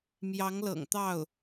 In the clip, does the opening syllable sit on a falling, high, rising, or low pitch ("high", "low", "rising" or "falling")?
rising